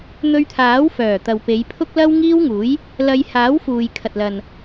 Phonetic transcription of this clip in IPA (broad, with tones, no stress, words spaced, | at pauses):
n̪ɵ˧ɥt̪ʰaː˨˥wfœː˨˩ t̪ɐ˨wpe˨˧jpʰʊ˥k̚lɐ˥w ŋiː˥wŋuː˨˥j | lɐ˧j haː˨˥wfuː˨jkʰɐ˨t̚lɐ˨n